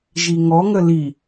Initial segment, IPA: ʒ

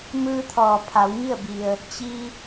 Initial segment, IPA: m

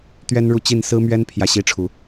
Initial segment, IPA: t̪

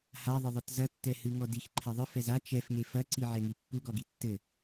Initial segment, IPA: h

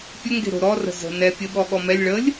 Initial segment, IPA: pʲ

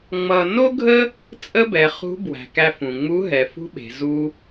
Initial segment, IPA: ŋ͡m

